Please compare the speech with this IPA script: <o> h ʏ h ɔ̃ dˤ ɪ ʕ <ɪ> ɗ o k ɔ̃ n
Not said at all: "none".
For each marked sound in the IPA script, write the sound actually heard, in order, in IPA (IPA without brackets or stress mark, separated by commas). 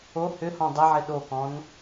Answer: o, ɪ